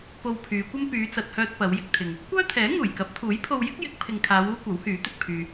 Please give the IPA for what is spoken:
p o˧ w pʰ yː˨˧ kʷ ɐ˥ m p yː˨˧ t͡s ɐ˨ t̚ h œː˧ t̚ p ɐ˨˧ w j ɪ˧ k̚ t̪ʰ ɪ˨ ŋ | kʷ œː˥ t̪ʰ ɛː˨˥ ŋ uː˨˩ j k ɐ˨˥ p̚ t̪ʰ uː˨˥ j pʰ o˧ w j ɪ˥ k̚ j ɪ˨˥ k̚ pʰ ɪ˨ ŋ kʰ aː˨˧ w uː˥ kʷ ɐ˨˥ w h yː˨˥ t̪ ɪ˨ k̚ pʰ yː˧

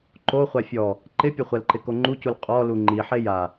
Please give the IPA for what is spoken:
ǃ o χʷ a fʲ ɔ | ǃ ɪ pʲ ʊ χʷ ɛ l ǃ ɪ k o ŋ͡ǃ u c u l qʼ ɔ l u ŋ͡ǃ i ħ e j a

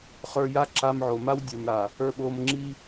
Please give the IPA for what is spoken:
χ ə˞˧ j a˦ ǁ a˧ m ʕ o˨ m a˧ w dʲ ə˞˨ m ɾ a˨ | ə˞˧ ɓ o˧ m ŋ͡ǁ i˦

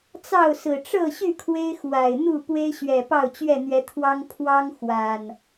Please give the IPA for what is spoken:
t͡s ɑ˥˨ ʊ̯ s ɹ̩˨˩ ʈ͡ʂ ɤ˥˨ ɕ y˥˨ kʰ w e˦ ɪ̯ x w a˨˩ ɪ̯ n̪ u˥˨ p w e˦ ɪ̯ ɕ ɥ ɛ˨˩ p ɑ˥˨ ʊ̯ t͡ɕ ɥ ɛ˥˨ n̪ ɥ ɛ˨˦ t̪ʰ w ɑ˦ ŋ pʰ w ɑ˦ ŋ x w a˨˩ n

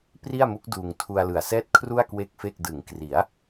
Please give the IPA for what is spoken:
p r i˥˩ a̯ m u˦˥ k̚ d uː˧ ŋ tʰ u˧ a̯ l ɯ˨˩ a̯ s ɛː˥˩ t̚ kʰ r u˥˩ a̯ k w e˥˩ k̚ f e˥˩ k̚ d ɯ˩˦ ŋ k r i˩˦ a̯

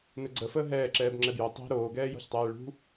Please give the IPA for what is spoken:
n ɘ ɡ͡ǀ ə f əː ɦ ɛː ǁ ɛː b ŋ͡ǁ ɛ b j o tˤ i̤ ɾ oː ɡ ɛː j ɔ̤ ç tˤ ɛː ɭ ṳ

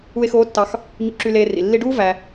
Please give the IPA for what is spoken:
u˧ e̯ x oː˧˥ tː ɑ˧ x | ɲ ṵ˧ ǁ y˧ l eː˧ r ḭ˩ lː i˧ ɖ uː˥ v æ˧

